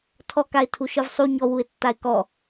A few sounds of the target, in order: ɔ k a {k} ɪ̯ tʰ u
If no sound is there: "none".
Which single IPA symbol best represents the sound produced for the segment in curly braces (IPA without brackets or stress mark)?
none